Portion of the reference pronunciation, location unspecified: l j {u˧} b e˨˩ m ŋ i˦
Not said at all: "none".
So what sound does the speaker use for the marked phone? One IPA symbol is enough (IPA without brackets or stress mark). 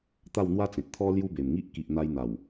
u˦